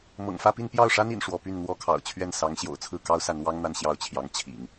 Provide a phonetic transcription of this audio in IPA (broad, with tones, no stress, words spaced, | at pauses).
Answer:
mɤ̰˨˩ŋfä˥˧pi˥˧n pjɑ˥˩ʊ̯ʂa˥nḭ˨˩n ʂwɔ˧˥py˥˩n n̪wɔ˥kʰɑ̰˨˩ʊ̯ t͡ɕʰɥɛ˥˩nsɑ˧˥ŋɕjo̰˨˩ʊ̯ t͡sʰɹ̩˥˩kɑ˥ʊ̯sa˧˥nwɑ˥ŋ n̪a˥˧nɕjɑ˥˩ʊ̯t͡ɕʰjɑ˧˥ŋ t͡ɕʰḭ˨˩˦ŋ